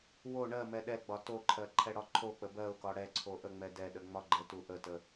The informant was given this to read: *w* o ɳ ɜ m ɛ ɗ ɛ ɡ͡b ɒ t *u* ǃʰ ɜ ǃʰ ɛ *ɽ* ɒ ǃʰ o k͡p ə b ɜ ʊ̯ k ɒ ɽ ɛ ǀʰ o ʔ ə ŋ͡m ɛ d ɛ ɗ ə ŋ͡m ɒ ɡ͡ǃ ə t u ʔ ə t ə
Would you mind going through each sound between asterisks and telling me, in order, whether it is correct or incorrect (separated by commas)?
correct, incorrect, correct